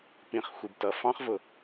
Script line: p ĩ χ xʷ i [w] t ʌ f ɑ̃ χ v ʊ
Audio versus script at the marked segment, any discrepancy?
yes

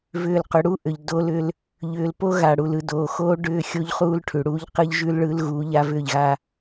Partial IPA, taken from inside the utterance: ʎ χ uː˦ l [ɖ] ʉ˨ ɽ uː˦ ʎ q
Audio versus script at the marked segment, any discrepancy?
yes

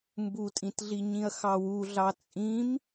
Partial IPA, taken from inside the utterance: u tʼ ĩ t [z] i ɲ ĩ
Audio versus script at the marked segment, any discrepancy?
yes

